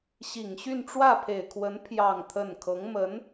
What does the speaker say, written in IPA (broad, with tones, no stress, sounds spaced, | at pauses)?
ɕ i˨˩ ŋ ɕ y˥˧ n ʈ͡ʂ w ä˥˩ pʰ e˨˩ ɪ̯ kʰ w ə˧˥ n pʰ j ɑ˥˧ ŋ t̪ʰ ə˥˩ n kʰ ɤ˧˥ ŋ m ə˧˥ n